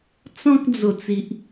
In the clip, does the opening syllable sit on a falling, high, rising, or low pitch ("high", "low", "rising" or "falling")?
high